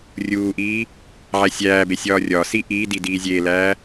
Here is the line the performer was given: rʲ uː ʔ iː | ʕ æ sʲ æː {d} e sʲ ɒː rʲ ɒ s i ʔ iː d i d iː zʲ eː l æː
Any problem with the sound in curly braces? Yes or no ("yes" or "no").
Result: yes